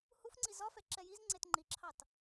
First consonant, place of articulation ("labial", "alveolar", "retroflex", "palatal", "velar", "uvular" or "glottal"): glottal